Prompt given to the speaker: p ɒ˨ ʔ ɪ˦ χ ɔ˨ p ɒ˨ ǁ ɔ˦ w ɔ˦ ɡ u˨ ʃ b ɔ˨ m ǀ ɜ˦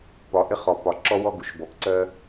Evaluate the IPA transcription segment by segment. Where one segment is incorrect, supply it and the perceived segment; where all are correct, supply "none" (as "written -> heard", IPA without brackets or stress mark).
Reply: m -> p